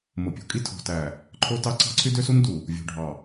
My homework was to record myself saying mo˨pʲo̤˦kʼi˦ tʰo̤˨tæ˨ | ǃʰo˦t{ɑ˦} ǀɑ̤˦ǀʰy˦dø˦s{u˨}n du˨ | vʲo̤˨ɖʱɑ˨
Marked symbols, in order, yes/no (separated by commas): yes, no